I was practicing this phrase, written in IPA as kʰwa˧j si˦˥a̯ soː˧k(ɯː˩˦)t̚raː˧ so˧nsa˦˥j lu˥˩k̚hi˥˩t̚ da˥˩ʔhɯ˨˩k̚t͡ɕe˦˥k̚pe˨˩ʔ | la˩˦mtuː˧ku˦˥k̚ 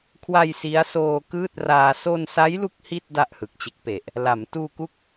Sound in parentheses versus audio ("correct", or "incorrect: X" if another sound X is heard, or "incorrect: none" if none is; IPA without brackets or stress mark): incorrect: ɯː˥˩